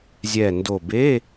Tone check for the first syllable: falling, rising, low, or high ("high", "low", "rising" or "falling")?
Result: low